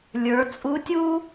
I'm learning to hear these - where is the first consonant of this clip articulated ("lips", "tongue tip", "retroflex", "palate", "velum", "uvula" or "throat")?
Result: tongue tip